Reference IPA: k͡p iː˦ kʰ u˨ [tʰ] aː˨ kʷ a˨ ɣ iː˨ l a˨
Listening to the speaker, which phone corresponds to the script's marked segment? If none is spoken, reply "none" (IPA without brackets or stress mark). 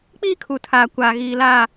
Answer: tʰ